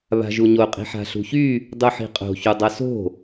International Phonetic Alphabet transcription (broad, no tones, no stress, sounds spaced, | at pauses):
β a̤ ʒ u ɲ o qʼ i̤ ħ a̤ ɬ ṳ ç y | dˤ u ħ i̤ qʼ o̤ ç u dˤ ʌ s o̤